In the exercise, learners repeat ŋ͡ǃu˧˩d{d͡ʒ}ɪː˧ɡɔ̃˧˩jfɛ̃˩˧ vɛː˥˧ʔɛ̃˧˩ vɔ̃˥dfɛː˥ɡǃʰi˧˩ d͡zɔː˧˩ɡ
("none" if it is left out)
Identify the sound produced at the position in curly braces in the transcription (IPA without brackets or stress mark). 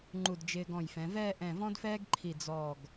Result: d͡ʒ